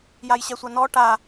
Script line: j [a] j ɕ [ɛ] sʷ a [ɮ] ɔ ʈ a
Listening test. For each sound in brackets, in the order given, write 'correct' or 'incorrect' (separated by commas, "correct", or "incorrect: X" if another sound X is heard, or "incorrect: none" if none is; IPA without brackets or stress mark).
correct, correct, incorrect: n